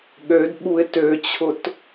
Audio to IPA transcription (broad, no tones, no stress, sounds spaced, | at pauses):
ɠ ø d ɓ u ɪ̯ t ø t͡ɕʰ ʊ t